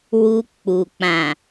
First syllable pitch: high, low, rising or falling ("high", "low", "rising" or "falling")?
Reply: high